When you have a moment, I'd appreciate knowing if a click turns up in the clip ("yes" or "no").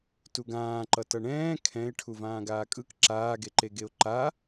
yes